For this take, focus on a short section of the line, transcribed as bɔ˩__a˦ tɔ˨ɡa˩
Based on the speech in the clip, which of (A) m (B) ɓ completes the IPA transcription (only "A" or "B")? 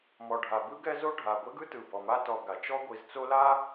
A